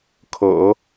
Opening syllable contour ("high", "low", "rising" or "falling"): low